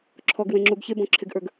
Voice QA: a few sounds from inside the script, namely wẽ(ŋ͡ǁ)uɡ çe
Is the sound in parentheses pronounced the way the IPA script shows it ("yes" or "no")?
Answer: yes